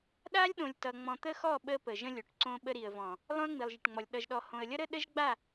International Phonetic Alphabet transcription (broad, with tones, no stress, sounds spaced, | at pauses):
ɗ a˦ lʲ ɗ õ˨ lʲ t ʌ˨ ŋ͡m ɔ̃˨ t̪ ə˦ x ɔ˦˨ ɓ ə˦ p ə˨ ʒ ə̃˦ lʲ o˨ ʈ ǀ õ˦ ɓ ə˦ ɾ i˨ ə̯ v ɔ̃˨ | lˠ õ˦ ə̯ ŋ͡m i˨ lˠ ʒ ə˨ ʈ ŋ͡m ɔ˨ lʲ ɗ ʌ˨ ʒ ɗ ɔ˨ h õ˨ ə̯ lʲ ʌ˦ ɾ ə˦ ɗ ə˦ ʒ ɡ͡b a˦˨